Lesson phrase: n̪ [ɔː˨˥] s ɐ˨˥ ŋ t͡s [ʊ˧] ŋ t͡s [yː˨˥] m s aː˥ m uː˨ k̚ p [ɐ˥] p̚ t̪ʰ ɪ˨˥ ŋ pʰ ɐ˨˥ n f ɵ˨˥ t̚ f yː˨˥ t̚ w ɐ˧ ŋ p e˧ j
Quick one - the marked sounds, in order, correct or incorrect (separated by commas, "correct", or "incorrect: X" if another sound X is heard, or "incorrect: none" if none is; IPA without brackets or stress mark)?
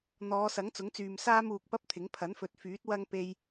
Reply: incorrect: ɔː˨˧, incorrect: ʊ˨˥, incorrect: yː˨, correct